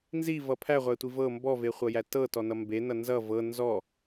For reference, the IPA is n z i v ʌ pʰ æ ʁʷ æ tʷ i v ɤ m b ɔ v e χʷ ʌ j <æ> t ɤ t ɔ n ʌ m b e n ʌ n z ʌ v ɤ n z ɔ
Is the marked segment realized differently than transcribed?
no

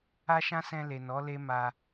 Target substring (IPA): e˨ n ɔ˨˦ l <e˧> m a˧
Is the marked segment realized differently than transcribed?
yes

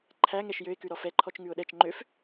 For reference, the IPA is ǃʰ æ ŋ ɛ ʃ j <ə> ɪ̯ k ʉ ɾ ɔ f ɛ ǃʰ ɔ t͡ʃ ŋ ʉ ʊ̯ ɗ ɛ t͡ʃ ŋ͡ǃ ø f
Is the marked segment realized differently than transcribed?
yes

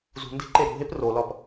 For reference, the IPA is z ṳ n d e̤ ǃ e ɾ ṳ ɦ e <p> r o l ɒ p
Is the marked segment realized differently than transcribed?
no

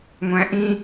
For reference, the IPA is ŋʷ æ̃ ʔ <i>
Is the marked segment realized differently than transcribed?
yes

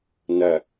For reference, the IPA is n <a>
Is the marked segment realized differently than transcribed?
yes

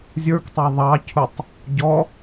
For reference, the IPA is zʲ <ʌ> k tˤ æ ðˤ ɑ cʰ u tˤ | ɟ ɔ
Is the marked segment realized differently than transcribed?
yes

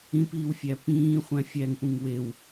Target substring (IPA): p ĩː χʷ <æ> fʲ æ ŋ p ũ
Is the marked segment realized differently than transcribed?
yes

